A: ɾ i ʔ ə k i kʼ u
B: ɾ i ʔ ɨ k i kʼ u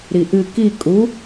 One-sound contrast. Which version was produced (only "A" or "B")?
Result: B